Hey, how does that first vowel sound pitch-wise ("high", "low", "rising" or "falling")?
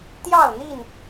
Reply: falling